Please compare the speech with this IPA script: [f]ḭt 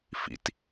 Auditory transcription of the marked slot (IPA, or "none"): f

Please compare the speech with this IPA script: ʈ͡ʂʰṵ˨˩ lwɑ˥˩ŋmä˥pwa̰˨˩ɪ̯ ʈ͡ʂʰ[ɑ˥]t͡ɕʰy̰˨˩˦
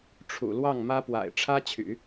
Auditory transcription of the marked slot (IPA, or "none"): ä˥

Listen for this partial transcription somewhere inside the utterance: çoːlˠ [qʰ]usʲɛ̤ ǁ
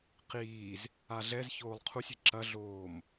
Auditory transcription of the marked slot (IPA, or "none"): qʰ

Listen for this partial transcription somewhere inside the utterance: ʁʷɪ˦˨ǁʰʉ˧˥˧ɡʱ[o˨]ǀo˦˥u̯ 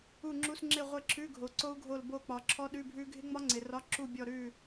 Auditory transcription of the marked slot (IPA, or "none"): o˨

